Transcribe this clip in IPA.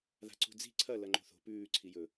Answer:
ð a̤ ǀ ṳ d͡z i̤ ǀʰ ɐ l ɐ ŋ͡ǃ o̤ θ o̤ p ʉː ǀʰ i j ɵ

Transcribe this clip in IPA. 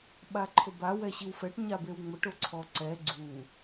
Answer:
ɓ a ǃʰ ʊ b a w ɛ ɕ i w f ɛ ʈ ɲ a b e w ŋ͡m ʊ ʈ ʊ ǀʰ ɔ ǀ ɛ ɡ͡ǀ u

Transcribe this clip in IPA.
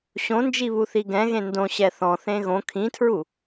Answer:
ɕ õ n d͡ʒ i β u θ i ɡ ɛ̃ ɣ ẽ n d õ ɕ ɛ θ ɔ̃ θ ẽ ɣ õ kʰ ĩ tʰ ɹ u

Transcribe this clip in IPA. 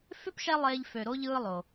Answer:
f ʏ˥ p ʃ ɛ˦ lˠ eː˦ ʎ f ø˨ ɾ o˥ ʎ ɯː˦ lˠ o˩

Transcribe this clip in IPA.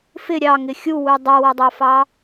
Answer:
f ɪ ɾʲ ɑ ŋ ɪ xʲ u w u dˤ ʌ w ʌ dˤ ɑ f ɑ

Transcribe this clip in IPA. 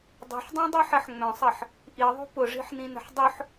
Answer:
dˤ ṳ ħ dˤ ĩ dˤ i ħ ɐ ħ ŋ͡m œ̃ sˤ ɐ ħ | ʔ i ðˤ ṳ p ʊ ʐ i̤ ħ n ĩ n ə̤ ħ dˤ ʊ ħ

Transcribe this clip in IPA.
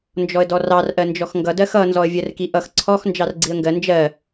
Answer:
n d͡ʒ ɔ ə̯ d ɔ r ɑ r ʔ ɜ n d͡ʒ ɔ x ŋ ɡ ʌ d ɜ x ʌ n z ɔ ə̯ vʲ ɜ r k i ʔ ʌ x ǀʰ ɔ x n d͡ʒ ɑ r ɡ͡ǀ i ə̯ ŋ ɡ ɜ n d͡ʒ ɜ

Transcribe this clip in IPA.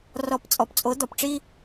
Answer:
r ɔ˧˥ p t͡sʼ ɔ˧ p t͡sʼ o˧˥ d̪ ɔ˧ p ʈ͡ʂ i˥

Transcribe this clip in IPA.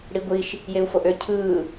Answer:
ɽ i ɡʷ i ʃ | j e u̯ f o ʔ ø cʰ ɯː

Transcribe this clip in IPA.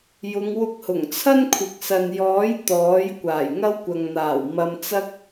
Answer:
j ʊ˨˧ ŋ w ʊ˧ k̚ h ʊ˨˩ ŋ t͡sʰ ɐ˥ n kʷʰ ɪ˨ k̚ s ɐ˨ n j ɔː˨˥ j t̪ ɔː˨˥ j kʷ aː˨˩ j ŋ ɐ˥ w kʷ ɐ˨ ŋ n̪ aː˨˩ w m ɐ˧ m t͡s ɐ˥ k̚

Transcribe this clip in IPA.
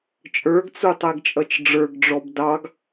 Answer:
t͡ʃʼ ə˞ ɡ t͡s u tˤ ɛ ɡ t͡ʃʼ ʌ t͡ʃ ɖ͡ʐ ə˞ ɡ ɖ͡ʐ ɔ b d ɑ ɡ

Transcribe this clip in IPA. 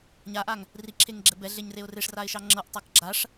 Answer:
ɲ a ʔ a ŋ | r i ǁʰ e ŋ ɡ͡ǁ ɛ b ɛ ɮ e ɲ r e ʊ̯ r e ʂ r a ɪ̯ ʃ ɑ ŋ͡ǁ ɤ ʔ tˤ a k ɡ͡ǁ a ʂ

